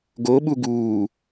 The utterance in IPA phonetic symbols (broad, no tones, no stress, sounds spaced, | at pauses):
ɡ o ɓ u ɡ uː